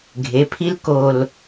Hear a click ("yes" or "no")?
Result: no